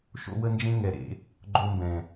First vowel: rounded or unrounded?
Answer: rounded